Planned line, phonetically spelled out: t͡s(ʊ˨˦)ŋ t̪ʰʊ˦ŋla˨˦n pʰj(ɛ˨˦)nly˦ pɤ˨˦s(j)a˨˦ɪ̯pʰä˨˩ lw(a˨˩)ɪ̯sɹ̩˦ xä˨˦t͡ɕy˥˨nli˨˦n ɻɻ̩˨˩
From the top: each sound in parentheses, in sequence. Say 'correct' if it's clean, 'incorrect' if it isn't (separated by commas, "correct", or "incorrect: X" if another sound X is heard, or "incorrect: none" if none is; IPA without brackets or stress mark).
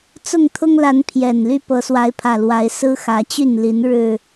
incorrect: ʊ˥˨, incorrect: ɛ˨˩, incorrect: w, incorrect: a˨˦